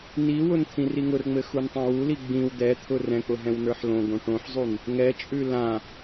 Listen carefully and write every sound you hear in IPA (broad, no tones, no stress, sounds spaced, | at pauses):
n i w ʊ n t̪ʰ ĩ r i ŋ ʊ r ŋ͡m ɘ x u n tˤ ã w u l i ɡ͡b ĩ w d̪ ɛ t̪ʰ ʊ r ɛ̃ k͡p ʊ ɦ ɛ̃ w n ə˞ ħ l õ ɡ õ ʈ õ ħ zˤ u n | ŋ ɛ t͡ʃʼ ʉ l ã